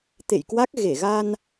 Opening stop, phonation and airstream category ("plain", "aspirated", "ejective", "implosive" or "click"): plain